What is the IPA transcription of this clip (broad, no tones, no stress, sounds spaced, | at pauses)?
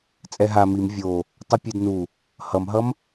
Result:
t͡sʼ ɛ ɦ a m i m vʲ o | tˤ ɯ pʲ e d n u | h ʌ m ɦ ʌ m